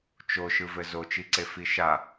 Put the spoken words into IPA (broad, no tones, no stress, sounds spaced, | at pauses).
t͡ʃ o ʃ ɯ v ɘ z o t͡ʃ i ǀ e f i ʃ a